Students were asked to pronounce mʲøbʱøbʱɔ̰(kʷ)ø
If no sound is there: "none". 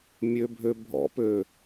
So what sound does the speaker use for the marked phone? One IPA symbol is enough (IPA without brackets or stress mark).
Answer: p